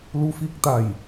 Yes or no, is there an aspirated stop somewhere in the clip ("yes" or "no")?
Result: no